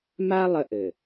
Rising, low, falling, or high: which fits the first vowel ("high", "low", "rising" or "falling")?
high